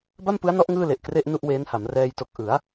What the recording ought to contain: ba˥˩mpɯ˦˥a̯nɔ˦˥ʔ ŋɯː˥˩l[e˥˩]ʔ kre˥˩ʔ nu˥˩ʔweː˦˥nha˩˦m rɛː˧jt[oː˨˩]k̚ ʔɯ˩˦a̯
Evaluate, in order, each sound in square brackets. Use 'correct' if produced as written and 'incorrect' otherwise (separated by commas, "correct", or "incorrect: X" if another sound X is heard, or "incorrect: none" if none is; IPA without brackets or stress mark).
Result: incorrect: e˨˩, incorrect: o˨˩